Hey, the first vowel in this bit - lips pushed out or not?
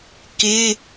no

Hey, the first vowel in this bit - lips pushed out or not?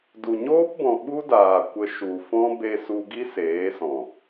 yes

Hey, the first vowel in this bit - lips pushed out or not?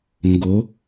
yes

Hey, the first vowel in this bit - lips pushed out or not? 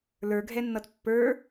no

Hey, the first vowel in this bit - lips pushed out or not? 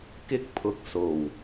no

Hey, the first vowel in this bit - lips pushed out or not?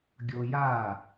yes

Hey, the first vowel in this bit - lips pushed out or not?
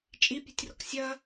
no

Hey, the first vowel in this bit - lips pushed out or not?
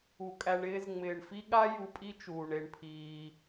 yes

